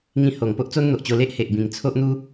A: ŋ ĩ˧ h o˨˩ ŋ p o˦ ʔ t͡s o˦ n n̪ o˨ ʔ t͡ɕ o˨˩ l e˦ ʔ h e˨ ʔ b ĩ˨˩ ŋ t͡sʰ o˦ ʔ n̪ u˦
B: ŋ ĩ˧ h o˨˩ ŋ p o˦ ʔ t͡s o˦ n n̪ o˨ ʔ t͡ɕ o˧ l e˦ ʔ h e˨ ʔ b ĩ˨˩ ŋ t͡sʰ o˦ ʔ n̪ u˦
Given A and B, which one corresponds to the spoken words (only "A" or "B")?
B